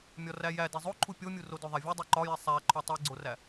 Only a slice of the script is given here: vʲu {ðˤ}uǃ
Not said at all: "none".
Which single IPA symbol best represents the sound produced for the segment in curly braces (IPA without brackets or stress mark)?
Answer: dˤ